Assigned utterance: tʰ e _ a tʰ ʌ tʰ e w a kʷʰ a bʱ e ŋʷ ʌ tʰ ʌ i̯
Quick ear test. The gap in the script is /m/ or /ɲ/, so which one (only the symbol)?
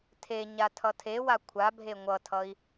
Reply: ɲ